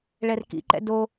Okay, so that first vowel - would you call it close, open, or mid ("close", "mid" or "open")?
mid